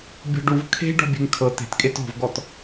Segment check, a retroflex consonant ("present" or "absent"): present